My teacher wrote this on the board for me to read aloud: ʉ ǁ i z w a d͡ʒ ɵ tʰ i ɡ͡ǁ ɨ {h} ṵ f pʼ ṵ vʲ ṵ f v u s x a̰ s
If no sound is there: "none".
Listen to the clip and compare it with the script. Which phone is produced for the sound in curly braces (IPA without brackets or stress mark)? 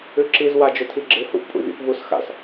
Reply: h